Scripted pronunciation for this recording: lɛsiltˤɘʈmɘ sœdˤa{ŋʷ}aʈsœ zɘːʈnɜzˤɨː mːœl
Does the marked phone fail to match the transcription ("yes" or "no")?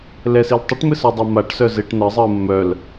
yes